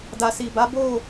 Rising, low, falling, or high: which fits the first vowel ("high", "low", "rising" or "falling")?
low